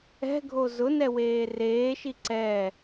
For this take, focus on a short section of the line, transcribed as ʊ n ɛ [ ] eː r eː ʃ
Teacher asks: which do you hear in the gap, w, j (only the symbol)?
w